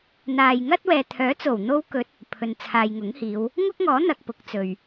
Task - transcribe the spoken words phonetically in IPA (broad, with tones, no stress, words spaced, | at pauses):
n̪aː˨jŋɐ˥t̚ wɛː˨t̪ʰœː˨˥t͡so˨˩w n̪o˧wkɵ˨˥t̚ | pʰɵ˨nt͡sʰaː˨jŋʊ˨˥ŋhiː˨˧w | ŋʊ˥k̚ŋɔː˨˥ n̪ɐ˧k̚pʊ˨˥k̚t͡sɵ˨ɥ